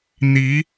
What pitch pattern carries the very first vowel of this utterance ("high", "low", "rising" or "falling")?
rising